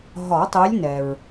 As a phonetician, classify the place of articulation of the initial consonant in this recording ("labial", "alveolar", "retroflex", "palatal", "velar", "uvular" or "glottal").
glottal